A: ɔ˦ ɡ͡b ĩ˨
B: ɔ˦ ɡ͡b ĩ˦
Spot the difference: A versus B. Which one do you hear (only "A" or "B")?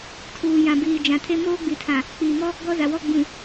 A